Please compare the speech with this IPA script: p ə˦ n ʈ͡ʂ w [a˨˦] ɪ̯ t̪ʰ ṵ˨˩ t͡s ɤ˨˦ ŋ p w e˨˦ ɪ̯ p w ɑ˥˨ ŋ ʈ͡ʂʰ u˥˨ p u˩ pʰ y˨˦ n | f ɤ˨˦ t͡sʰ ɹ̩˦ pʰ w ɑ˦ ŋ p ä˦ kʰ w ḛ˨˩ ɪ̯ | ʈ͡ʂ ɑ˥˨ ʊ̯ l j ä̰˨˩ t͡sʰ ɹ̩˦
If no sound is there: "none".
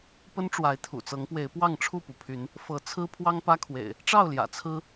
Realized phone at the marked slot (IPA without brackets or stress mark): a˨˦